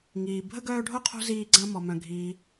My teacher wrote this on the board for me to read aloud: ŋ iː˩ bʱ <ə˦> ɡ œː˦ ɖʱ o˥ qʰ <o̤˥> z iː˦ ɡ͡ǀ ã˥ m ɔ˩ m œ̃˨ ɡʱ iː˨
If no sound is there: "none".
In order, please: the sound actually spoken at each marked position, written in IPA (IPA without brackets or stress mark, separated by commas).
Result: ə˥, o̤˥